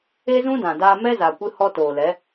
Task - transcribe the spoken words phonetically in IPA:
e˦ z ũ˦ d ã˨ d aː˧ m ɛ˦ z a˨ kʷ ɨ˧ h ɔ˧ t oː˨ l ɛ˨˦

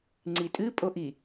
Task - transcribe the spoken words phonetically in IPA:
ŋ͡ǀ i tʼ ɨ pʼ o ʔ i

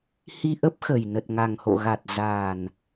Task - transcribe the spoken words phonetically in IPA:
h i˧ ʔ ə˦˥ p̚ x ə˨˩ j n ə˨˩ t̚ ŋ a˨˩ ŋ h o̰˧˨ ɣ a˨˩ t̚ z a˨˩ n

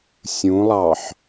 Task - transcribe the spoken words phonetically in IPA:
sʲ ũ lˠ ɑ ħ

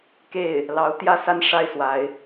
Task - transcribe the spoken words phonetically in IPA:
k e˥˩ ɪ̯ | l ɑ˧˥ ʊ̯ t̪ j ä˥˩ s a˥ n ʂ a˥˩ ɪ̯ s w a˧˥ ɪ̯

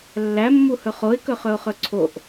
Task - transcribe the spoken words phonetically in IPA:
lː æ mː u h ɵ χ o ɪ̯ k ɵ χ ɵ ʊ̯ χ ɵ ǀʰ o ʔ

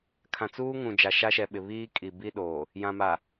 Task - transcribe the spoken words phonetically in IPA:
kʰ ã˨ t͡s uː˦ ŋ ũ˨ d͡ʒ a˨ ʃ a˦ ʃ ɛ˨ ɓ ɪ˨ β iː˦ kʼ i˨ b i˦ ɗ oː˨ | j ã˨ m a˨

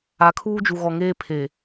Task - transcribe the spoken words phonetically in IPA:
a˨˦ kʰ uː˦ d͡ʒ u˨ ɣ ɔ˨ ŋ eː˦ pʰ e˨

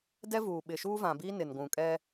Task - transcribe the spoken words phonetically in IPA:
d ɛ˦ v uː˨ ɓ ɪ˨ ʃ uː˦ v ã˨ b iː˦ n ɪ˨ n ɡʷ ũ˨ kʼ ɛ˦

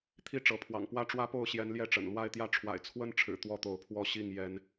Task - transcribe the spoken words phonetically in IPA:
t̪ʰ i˥˨ ʈ͡ʂ ɤ˨˦ pʰ w ɑ̰˨˩ ŋ p w ä˥˨ ʈ͡ʂ w ä˦ p o˥˨ ʊ̯ ɕ j ɛ˨˦ n l j ɛ˥˨ ʈ͡ʂ ə̰˨˩ n l w a˥˨ ɪ̯ t̪ j ä˥˨ ʈ͡ʂʰ w a̰˨˩ ɪ̯ t͡sʰ w ə˦ n ʈ͡ʂʰ ɻ̩˨˩ t̪ w ɔ˥˨ t̪ o˨˦ ʊ̯ pʰ w ɔ˦ ɕ i˥˨ ŋ j ɛ˨˦ n

